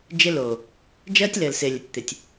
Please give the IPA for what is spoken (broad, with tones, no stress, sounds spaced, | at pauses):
d͡ʒ ɪ˦ l oː˨ | d͡ʒ ɜː˦ tʲ l ɘː˨ l s ɪː˨ lʲ ə˨ tʲ t̪ ɪ˨ tʲ